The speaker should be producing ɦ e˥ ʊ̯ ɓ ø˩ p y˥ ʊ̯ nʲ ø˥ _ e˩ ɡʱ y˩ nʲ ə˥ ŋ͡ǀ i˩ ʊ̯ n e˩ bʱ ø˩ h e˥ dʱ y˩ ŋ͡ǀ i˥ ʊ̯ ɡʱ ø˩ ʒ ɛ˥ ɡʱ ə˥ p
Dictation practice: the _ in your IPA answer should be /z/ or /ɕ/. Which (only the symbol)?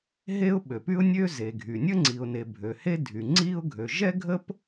z